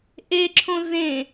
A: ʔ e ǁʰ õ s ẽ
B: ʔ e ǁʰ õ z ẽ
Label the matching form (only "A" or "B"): B